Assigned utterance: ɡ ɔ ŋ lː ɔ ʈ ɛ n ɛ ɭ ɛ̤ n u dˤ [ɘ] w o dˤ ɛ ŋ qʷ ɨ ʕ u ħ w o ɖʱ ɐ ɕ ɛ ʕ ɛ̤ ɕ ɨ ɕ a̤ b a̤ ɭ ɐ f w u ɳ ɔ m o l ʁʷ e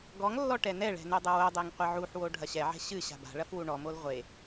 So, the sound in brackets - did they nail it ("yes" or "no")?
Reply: yes